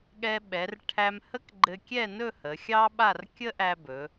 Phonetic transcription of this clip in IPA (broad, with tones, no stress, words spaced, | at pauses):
ɠɛ˧ɓɛ˩˧r ʈʰæ˧mhə˥k ɡ͡ǃɘ˧kʲɛ˥˧nɵ˥˧ hə˩˧xʲɑ˥ɓa˥˧r kʲə˥ʔæ˧ bɵ˩˧